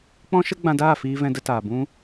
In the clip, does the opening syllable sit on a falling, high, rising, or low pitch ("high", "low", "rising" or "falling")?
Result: high